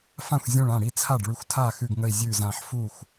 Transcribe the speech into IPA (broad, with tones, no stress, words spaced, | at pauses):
fã˥˩xʷzʲũ˧˩ɭ ã˥˩ɽi˥˩t͡sʰa˥˩ɖɭʉ˧˩xʷ tʰa˥˩xʉ˧˩ɡŋə˧˩i̯ zʲʉ˧˩zã˧˩ħfu˥˩xʷ